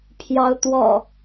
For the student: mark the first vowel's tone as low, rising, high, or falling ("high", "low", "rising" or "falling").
rising